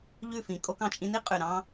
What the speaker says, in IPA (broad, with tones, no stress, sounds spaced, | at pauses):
ʎ ʉ˦˨ f ĩ˨ kʼ o˧ k ɑ̃˨ t͡ʃʼ ĩ˧ n i˦ qʼ ʉ˨ ɾ ɑ̃˦